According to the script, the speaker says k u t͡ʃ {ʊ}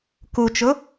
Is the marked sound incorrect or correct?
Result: correct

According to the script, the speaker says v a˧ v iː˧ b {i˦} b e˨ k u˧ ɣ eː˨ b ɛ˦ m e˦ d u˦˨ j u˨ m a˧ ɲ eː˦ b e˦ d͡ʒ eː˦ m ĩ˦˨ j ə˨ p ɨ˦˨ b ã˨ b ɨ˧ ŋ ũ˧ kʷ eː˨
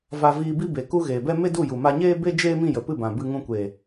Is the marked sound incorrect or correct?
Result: correct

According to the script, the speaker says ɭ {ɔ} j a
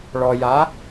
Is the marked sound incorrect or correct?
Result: correct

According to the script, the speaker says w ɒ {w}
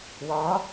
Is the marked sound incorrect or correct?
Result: incorrect: none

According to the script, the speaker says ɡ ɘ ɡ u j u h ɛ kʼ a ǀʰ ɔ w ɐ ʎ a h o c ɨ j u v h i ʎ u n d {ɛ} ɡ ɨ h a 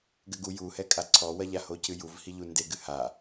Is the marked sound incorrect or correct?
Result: incorrect: e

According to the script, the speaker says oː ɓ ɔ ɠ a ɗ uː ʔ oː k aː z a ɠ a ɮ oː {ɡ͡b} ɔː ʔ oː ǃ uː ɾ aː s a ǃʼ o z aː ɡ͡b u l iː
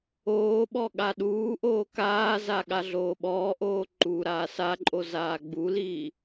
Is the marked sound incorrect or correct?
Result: incorrect: ɓ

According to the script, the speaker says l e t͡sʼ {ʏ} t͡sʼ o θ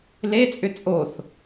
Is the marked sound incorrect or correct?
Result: correct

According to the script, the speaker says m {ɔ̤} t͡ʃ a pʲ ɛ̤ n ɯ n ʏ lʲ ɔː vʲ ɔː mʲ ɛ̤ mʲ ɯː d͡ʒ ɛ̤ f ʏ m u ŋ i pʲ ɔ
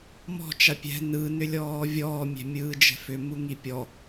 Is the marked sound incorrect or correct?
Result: correct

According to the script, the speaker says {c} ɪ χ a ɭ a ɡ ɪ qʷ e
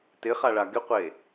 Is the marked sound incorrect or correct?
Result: incorrect: t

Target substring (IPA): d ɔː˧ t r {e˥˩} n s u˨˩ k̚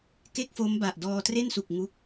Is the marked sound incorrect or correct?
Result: correct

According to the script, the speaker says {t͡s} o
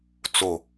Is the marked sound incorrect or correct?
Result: correct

